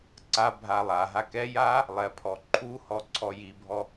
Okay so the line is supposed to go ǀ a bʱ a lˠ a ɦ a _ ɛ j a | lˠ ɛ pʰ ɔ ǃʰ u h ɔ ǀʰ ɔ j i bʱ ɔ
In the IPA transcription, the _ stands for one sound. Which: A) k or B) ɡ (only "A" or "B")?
A